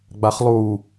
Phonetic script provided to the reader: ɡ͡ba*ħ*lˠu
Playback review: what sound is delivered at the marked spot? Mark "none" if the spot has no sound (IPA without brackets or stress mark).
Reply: χ